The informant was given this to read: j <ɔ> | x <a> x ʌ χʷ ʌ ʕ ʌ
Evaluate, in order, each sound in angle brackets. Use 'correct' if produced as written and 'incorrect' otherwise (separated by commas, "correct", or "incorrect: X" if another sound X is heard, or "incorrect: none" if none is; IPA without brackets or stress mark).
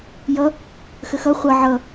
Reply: incorrect: ʌ, incorrect: ə